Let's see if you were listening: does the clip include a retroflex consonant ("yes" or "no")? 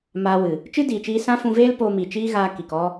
no